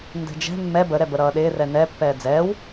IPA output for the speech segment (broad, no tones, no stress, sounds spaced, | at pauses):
n d ɛ̤ d͡ʒ ɛ̤ mː ɛ b ə ɾ ɛ b ə ɾ ʌː ɗ ɪː r ɛ n ɛ pː ɛː d͡z ɛː w